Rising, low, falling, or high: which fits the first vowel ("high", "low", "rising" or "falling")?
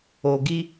low